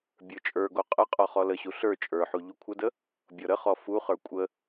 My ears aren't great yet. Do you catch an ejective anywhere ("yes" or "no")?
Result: yes